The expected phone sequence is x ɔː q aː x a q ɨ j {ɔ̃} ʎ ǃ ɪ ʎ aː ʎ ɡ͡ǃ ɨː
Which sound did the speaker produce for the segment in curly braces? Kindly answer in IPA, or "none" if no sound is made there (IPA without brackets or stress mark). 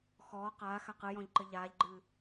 ɔ̃